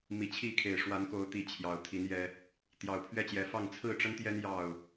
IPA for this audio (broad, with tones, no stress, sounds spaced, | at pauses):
m i˨˩ t͡ɕʰ i˥˨ kʰ e˨˩ ɪ̯ ʂ w a˨˦ n k o˨˦ ʊ̯ t̪ i˨˩ t͡ɕʰ j ɑ˨˦ ʊ̯ t̪ʰ i˨˦ n j ɛ˦ | t̪ j ɑ˨˩ ʊ̯ pʰ ɥ ɛ˥˨ t͡ɕ j ɛ˨˦ f ɑ˥˨ ŋ t͡sʰ ɹ̩˥˨ ʈ͡ʂ ə˦ n t̪ j ɛ˦ n j ɑ˥˨ ʊ̯